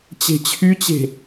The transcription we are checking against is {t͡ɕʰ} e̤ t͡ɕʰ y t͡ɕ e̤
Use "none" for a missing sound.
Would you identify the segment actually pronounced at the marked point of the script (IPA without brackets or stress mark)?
t͡ɕ